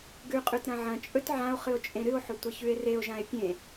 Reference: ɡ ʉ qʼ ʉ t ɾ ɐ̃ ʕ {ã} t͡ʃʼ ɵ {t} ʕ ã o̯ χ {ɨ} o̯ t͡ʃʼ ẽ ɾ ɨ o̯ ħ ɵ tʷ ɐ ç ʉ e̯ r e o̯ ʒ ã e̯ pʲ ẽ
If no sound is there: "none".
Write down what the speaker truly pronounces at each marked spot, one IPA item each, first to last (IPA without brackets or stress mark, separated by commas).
ɐ̃, t, ɨ